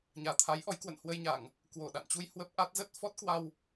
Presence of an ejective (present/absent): absent